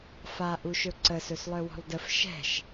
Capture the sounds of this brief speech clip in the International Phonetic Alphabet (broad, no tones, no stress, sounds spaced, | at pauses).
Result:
f a ʔ u ʃ ɵ ǀ ə s ɵ s lˠ œ w ɔ̤ lˠ d ə f ʃ ɛ̤ ʃ